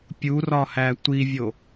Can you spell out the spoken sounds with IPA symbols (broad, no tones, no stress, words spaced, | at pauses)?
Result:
pʲurɒhæ tʷivʲo